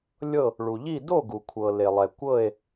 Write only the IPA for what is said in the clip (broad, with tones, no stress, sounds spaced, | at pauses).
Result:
lʲ ɤ˥˨ | ɭ u˩ ʎ i˥˨ d o˥˨ ɡ u˩ kʷʰ ɤ˩ l e˩ lˠ ɛ˩ kʷ ɤ˥˨ e̯